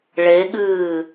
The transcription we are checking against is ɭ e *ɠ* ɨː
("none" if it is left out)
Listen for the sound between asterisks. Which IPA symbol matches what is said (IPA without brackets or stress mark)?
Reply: ɠ